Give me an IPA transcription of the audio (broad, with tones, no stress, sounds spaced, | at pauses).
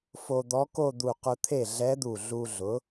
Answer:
f o˧ d̪ ɔ˧˥ k o˥˧ d̪ u˧˩ q ʊ˧ t̪ʰ e˥˩ ɮ ɛ˧˥ d̪ u˧˩ ɮ u˧ ɮ ʊ˩˥